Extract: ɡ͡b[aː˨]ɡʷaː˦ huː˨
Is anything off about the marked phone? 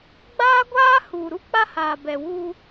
yes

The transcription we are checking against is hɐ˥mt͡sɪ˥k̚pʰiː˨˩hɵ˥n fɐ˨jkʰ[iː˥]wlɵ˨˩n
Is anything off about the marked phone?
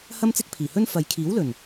yes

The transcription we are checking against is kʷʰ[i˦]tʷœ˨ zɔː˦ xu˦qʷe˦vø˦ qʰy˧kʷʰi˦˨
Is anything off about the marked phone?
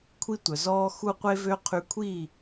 no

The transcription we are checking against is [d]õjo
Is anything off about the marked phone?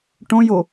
yes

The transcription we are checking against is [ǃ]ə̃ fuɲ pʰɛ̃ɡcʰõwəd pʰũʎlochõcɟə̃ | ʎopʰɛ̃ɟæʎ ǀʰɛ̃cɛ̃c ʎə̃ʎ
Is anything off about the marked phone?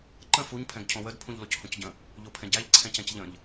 no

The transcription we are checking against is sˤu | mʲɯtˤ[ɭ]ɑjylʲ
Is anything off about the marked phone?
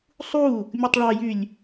no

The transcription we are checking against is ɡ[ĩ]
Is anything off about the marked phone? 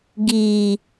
yes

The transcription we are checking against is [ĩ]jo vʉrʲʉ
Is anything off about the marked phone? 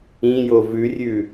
no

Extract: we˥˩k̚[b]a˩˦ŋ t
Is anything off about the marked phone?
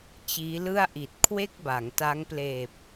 no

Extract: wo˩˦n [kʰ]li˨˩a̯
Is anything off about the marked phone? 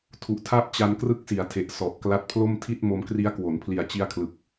yes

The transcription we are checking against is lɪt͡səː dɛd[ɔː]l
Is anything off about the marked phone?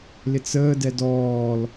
no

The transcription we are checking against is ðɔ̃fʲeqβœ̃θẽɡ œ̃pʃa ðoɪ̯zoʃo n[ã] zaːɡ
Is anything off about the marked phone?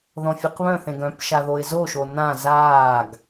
no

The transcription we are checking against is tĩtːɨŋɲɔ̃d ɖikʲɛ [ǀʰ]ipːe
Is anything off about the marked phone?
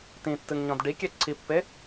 no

